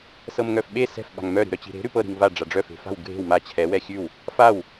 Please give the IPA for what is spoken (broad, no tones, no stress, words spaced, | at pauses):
sɤmŋœfɓe sɛ̤f ɓa̤ŋmœ ɾi̤ɾœt͡ɕi̤ɾe̤ ɾʉpɤ ɾi̤ŋva ɖ͡ʐaɖ͡ʐœ fe̤fa̤w ɡʱe̤w ma t͡ɕʰɛ wɛxʲʉw | faw